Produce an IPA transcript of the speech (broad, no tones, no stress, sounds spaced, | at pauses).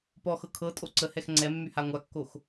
p ɔ x ɤ kʰ ɤ tʼ o ǀ ə h ɛ x ŋ͡ǀ ɛ mː y h a ŋʷ a kː o x